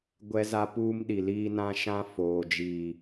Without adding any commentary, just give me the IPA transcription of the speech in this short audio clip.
ɡʷ ɛ˦ z a˦ p uː˦ m ɗ i˨ l iː˦ n ã˦ ʃ ã˦ f oː˨ d͡ʒ iː˨

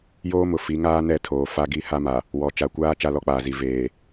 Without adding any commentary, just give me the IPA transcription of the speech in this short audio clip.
j oː˦ m ʊ˨ f i˨˦ ŋ aː˦ n ɛ˦˨ tʰ oː˨ f a˦ ɡ i˦ h a˦ m a˨ | w ɔ˨ t͡ʃ a˨ kʷ aː˦ t͡ʃ a˦ l ɔ˦ k͡p aː˨ z i˨ v eː˨

